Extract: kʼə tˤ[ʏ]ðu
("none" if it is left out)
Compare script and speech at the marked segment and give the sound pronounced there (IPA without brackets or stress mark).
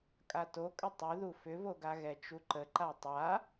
u